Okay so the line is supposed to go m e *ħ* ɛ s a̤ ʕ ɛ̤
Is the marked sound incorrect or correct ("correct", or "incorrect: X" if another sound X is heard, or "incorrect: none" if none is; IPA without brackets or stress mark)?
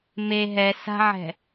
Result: incorrect: ɦ